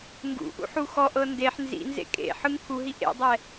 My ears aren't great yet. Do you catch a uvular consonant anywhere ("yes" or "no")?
no